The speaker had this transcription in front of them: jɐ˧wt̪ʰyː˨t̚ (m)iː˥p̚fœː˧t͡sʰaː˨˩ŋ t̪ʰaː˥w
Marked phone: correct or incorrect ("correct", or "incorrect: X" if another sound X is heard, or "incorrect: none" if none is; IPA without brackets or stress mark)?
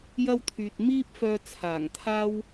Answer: correct